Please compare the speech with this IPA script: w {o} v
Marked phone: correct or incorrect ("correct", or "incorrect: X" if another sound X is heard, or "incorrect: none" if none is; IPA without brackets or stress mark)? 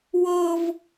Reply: incorrect: ɤ